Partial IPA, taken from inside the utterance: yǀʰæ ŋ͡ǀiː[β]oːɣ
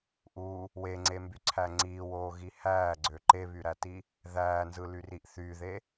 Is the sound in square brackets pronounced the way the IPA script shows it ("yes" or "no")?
no